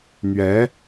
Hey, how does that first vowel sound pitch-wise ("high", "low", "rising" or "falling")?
rising